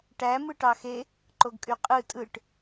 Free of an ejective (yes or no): no